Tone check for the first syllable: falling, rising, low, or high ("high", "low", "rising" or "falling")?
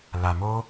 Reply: low